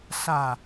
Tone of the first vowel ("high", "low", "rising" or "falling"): low